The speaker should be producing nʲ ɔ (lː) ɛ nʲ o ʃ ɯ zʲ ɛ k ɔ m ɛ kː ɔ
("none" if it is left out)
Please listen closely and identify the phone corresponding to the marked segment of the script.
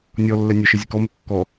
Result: lː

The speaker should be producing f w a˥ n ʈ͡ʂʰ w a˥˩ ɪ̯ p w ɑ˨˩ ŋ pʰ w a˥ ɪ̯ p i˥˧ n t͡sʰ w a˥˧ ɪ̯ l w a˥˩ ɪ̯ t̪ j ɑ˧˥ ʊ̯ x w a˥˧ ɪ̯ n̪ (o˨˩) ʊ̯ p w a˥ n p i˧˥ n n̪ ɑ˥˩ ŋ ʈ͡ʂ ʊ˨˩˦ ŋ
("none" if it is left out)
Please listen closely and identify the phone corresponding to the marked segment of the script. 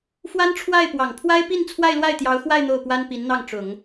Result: o˥˩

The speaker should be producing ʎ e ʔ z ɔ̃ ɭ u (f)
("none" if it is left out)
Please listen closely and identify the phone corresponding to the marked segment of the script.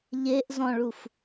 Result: f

